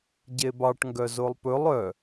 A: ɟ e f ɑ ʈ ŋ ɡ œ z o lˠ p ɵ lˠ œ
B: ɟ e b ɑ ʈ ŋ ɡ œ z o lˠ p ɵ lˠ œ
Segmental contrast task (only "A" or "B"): B